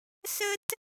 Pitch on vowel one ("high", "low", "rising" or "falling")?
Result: high